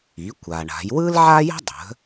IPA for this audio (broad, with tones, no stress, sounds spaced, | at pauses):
i˩˥ kʷ a˩ ɳ a̤˩˥ j w ɯ˥ l ʕ a˥ j ə̤˥ dˤ ə̤˩˥